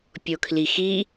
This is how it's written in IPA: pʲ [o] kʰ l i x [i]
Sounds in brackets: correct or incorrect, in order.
correct, correct

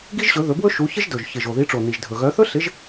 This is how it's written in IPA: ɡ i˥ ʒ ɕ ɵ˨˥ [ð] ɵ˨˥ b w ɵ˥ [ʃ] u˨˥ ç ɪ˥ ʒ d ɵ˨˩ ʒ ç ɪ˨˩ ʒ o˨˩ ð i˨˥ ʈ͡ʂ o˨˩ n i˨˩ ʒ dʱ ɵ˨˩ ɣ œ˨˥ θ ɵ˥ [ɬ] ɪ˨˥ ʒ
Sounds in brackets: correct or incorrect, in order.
correct, correct, correct

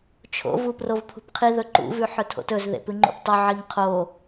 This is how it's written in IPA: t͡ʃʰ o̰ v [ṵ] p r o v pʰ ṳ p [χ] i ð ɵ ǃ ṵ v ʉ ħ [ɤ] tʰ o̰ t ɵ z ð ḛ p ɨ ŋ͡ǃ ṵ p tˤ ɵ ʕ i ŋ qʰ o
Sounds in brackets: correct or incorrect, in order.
incorrect, incorrect, incorrect

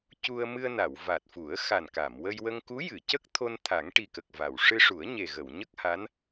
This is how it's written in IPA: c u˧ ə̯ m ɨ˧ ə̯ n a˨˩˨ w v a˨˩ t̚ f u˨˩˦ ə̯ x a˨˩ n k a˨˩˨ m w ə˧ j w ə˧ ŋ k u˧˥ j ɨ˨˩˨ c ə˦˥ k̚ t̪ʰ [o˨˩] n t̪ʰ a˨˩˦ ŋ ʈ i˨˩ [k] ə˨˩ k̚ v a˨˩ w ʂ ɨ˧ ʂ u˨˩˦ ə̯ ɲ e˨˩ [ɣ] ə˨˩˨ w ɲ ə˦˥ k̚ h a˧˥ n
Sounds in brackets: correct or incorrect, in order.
incorrect, correct, correct

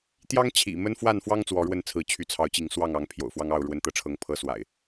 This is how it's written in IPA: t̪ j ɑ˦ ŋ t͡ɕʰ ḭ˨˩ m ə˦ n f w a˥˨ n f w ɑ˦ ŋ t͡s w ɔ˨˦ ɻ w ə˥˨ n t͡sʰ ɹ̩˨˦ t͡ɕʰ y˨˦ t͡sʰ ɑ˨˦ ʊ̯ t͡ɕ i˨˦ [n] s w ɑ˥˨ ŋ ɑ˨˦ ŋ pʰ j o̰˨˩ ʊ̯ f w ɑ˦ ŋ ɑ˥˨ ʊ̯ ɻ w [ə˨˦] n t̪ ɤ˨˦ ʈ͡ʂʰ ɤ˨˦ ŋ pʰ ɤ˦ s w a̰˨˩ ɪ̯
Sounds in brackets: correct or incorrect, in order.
incorrect, correct

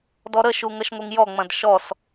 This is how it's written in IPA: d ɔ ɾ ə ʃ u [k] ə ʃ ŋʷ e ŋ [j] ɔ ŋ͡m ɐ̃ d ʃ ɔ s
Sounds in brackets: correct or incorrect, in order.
incorrect, correct

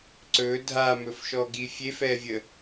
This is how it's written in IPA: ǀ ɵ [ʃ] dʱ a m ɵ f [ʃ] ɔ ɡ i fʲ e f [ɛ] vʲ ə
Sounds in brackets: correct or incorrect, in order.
incorrect, correct, correct

